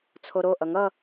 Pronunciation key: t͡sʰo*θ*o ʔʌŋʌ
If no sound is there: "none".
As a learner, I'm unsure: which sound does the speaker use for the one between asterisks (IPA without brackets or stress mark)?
ɾ